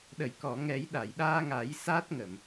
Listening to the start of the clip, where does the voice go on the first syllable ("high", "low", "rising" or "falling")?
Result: low